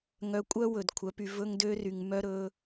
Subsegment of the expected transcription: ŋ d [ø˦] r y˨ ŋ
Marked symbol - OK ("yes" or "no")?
yes